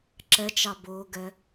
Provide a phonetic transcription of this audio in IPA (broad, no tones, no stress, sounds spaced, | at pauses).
ǁ ɛ t͡ʃ ɑ b ʊː ɡ ɛ